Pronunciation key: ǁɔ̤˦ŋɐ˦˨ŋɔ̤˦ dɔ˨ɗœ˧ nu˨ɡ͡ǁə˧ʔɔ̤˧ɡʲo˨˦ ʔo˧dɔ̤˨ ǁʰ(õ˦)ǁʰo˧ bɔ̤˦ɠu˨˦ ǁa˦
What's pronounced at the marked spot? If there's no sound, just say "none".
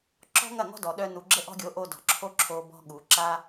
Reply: o˦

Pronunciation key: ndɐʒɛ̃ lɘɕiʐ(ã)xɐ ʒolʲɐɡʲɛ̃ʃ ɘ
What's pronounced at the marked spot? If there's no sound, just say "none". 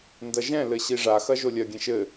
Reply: a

